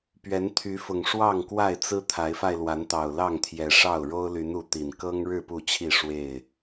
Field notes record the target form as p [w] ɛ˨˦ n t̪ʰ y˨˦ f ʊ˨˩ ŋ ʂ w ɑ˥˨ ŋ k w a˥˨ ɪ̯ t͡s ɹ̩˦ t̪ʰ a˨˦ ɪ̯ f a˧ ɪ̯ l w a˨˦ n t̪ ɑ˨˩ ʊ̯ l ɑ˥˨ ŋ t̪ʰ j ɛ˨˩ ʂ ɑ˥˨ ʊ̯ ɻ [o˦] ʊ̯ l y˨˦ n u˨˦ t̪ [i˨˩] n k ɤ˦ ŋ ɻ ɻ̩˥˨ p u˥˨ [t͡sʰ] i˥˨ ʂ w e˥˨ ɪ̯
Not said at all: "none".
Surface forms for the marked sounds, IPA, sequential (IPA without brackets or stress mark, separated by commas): ɥ, o˦, i˨˩, t͡ɕʰ